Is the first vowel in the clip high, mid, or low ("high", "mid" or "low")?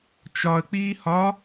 low